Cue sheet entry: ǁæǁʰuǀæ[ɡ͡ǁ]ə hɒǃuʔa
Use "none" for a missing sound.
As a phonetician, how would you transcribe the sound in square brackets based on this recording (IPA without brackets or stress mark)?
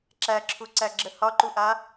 ɡ͡ǁ